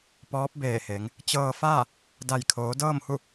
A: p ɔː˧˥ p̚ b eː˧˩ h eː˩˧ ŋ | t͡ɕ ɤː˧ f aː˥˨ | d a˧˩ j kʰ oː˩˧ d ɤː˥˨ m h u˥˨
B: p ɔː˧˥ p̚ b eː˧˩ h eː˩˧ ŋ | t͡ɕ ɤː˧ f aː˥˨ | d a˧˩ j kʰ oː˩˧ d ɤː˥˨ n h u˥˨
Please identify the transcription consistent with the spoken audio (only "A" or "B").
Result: A